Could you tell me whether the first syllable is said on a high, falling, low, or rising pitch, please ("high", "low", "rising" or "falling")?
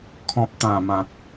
low